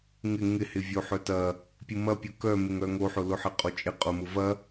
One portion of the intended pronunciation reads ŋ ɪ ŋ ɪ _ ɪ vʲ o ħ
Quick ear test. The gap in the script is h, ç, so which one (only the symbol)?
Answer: h